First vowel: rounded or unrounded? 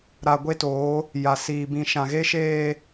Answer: unrounded